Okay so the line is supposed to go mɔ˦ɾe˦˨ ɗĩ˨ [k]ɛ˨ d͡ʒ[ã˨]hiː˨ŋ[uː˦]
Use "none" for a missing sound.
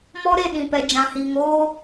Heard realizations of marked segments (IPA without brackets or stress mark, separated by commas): p, ã˨, oː˦